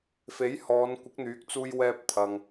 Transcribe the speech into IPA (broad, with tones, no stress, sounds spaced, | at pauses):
f e˨˥ j h ɔː˨˧ n kʷ ɪ˨˥ k̚ n̪ yː˨˥ k̚ t͡s uː˧ j w ɛː˧ p̚ t̪ʰ ɐ˨ ŋ